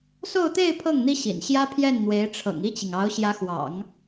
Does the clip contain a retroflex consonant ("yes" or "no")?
yes